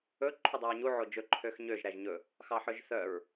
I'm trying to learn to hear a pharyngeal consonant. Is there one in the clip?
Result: yes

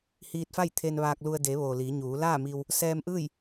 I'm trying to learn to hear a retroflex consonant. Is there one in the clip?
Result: no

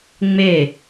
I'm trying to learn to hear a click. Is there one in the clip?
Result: no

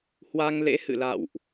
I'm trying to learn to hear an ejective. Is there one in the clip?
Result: no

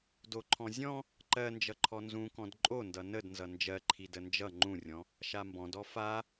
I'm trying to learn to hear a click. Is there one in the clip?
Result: yes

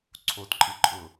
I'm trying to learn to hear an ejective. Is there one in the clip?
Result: yes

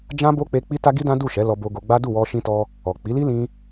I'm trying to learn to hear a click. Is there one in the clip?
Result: no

